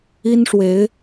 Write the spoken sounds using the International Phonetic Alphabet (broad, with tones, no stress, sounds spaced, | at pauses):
i˥ n ʂ w e˧˥ ɪ̯